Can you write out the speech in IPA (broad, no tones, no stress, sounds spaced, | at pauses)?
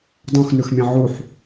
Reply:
dˤ ũ x n ʉ x mʲ ɛ̃ ʕ u ħ